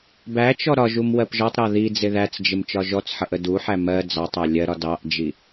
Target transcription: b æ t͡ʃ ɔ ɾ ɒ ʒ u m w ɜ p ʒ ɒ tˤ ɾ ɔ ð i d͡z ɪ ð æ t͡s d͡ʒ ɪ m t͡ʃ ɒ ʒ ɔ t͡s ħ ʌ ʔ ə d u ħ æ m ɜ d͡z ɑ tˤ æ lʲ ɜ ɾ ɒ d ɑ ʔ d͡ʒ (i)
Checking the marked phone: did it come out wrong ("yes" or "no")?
no